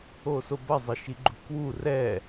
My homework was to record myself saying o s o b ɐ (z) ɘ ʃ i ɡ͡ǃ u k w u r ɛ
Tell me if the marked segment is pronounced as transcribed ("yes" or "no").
no